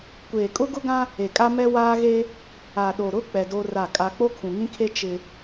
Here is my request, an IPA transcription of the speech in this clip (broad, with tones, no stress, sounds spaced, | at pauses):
kʷ eː˨ kʼ ʊ˦ ɡ ʊ˦ ɡ ã˦ | e˨ kʼ a˦ m ɛ˦ w aː˦ ɣ e˦ | a˨ ɗ o˨ ɾ ʊ˦ k͡p ɛ˨ d o˦ r a˦˨ kʼ a˦ k͡p o˦ kʰ ũ˨ ŋ ĩ˦ kʰ e˦ t͡ʃ ɪ˦